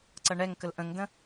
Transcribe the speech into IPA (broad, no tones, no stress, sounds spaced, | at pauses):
ǀ ʌ ɳ ɛ ŋ k ə l ʔ ə̃ ŋ d ə̃